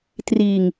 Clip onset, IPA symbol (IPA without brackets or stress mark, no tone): t